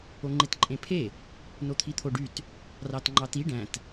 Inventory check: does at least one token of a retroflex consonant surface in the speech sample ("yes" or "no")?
yes